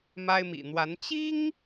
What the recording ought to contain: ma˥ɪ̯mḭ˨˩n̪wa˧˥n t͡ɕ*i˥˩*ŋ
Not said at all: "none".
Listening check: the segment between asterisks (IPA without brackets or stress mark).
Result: i˥